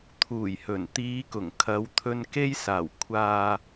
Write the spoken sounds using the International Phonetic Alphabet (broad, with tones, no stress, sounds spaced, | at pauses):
t̪ʰ uː˨˩ j h ɵ˨˩ n t̪ iː˨˧ k ʊ˨˩ ŋ kʰ ɐ˨˧ w t̪ʰ ɵ˧ n k e˧ j s aː˨˩ w kʷʰ aː˨